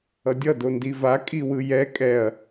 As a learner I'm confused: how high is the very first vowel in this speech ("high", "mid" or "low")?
mid